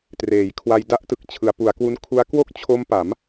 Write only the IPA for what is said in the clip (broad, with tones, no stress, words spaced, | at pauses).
treː˩˦jkʰwa˧j da˦˥ʔtɯ˨˩k̚t͡ɕʰɯ˩˦a̯ pu˩˦a̯kwu˦˥nkʰu˦˥a̯ kwo˥˩k̚t͡ɕʰo˦˥mpa˩˦m